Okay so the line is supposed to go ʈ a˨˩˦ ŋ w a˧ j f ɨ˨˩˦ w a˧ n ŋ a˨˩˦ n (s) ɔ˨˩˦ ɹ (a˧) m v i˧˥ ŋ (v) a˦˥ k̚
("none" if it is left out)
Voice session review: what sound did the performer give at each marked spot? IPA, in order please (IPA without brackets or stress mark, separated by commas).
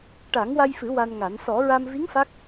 s, a˧, f